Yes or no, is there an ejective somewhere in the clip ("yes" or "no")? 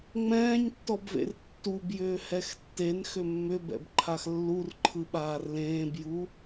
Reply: no